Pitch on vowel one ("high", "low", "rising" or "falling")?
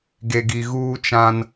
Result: low